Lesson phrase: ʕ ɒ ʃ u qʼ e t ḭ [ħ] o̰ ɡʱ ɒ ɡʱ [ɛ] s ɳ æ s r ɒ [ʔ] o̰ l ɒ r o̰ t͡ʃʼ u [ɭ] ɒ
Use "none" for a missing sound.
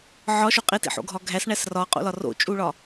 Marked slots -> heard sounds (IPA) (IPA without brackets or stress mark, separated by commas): ħ, æ, qʼ, ɭ